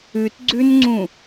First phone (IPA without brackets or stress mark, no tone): ʉ